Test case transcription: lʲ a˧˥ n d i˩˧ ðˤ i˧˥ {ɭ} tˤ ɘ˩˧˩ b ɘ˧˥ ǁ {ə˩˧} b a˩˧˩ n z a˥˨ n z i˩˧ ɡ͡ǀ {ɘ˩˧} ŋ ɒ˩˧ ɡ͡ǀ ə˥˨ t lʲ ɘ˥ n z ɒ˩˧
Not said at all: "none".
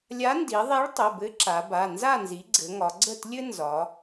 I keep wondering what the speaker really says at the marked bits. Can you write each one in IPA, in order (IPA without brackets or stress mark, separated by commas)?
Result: ɭ, a˩˧, ɘ˩˧